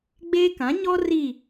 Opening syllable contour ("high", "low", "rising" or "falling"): high